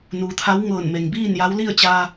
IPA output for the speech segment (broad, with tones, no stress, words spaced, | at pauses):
nuː˩t̪ʰa˧˥w ŋɤː˧˩nme˩ŋbiː˥˨nja˧˥w li˥˨ə̯t͡ɕaː˧